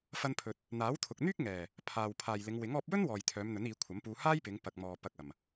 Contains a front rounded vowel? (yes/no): yes